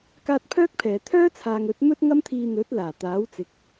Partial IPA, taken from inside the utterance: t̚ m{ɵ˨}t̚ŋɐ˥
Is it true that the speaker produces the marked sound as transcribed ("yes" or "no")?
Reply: no